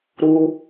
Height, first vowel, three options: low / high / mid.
high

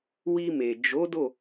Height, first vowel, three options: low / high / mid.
high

